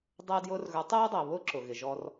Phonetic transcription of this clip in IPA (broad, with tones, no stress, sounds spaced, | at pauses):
dˤ əː˧ d j ʊː˧ r ɣ ə˞˩˥ tˤ ɛː˥ dˤ əː˩ β ʊː˥ ǁ ʊ˩ ɣ ɪ˩ ʒ ɔ˧ r